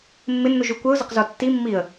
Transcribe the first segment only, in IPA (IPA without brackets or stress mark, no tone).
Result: mː